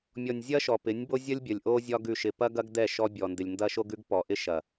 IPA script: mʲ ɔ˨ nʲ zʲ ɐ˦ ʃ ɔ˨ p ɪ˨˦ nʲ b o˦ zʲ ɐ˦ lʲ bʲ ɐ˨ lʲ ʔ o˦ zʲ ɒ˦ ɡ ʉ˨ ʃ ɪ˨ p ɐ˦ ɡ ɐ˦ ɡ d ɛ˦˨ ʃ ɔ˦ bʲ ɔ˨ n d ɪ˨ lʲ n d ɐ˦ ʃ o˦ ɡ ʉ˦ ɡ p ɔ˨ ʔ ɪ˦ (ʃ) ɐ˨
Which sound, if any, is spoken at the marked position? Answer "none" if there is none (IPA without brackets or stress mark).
ʃ